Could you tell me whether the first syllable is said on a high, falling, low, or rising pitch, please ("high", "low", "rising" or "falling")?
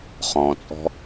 low